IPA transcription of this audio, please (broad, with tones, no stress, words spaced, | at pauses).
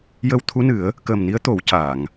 jə˧w t̪ʰu˧˥nɨ˨˩˦ə̯ | kəː˨˩mni˧˥ə̯t̪o˨˩˦w caː˨˩˨ŋ